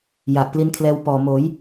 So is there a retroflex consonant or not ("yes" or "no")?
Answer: no